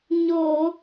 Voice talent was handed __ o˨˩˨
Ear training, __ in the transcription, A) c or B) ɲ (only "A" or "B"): B